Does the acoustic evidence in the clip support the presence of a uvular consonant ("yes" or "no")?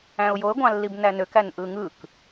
no